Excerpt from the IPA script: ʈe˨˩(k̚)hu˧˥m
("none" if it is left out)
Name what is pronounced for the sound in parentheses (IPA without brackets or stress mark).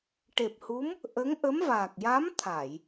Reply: p̚